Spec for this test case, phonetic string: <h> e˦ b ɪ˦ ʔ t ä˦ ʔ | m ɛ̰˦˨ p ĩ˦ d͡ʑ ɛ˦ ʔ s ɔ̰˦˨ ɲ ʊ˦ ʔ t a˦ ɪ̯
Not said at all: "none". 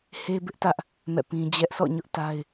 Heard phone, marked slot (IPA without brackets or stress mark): h